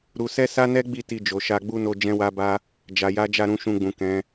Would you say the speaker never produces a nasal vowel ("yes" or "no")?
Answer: no